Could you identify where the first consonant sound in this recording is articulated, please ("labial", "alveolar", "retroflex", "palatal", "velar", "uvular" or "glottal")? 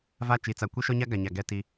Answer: labial